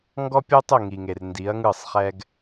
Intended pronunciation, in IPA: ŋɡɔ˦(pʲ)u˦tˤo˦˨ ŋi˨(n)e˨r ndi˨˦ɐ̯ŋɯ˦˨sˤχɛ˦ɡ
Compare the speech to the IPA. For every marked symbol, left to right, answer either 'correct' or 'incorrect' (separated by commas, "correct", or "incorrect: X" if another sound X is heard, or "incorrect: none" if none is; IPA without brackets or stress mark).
correct, incorrect: ŋ